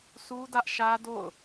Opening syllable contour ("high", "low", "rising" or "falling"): high